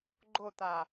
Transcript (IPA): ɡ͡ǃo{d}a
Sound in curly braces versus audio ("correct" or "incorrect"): incorrect